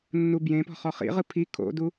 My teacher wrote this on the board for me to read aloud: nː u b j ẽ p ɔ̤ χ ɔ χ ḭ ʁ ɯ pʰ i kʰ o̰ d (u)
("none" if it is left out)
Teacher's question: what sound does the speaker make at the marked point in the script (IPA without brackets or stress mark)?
u